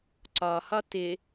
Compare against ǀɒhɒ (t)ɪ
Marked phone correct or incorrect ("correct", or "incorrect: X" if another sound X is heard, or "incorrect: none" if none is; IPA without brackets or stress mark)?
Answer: correct